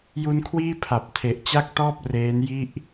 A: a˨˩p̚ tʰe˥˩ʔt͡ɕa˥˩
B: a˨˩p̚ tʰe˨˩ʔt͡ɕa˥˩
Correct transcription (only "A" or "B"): B